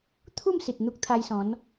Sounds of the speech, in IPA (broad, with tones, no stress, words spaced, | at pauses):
t̪ʰu˥˧msi˨t̚ n̪u˦k̚t̪ʰa˧jsɔ̃˨˦n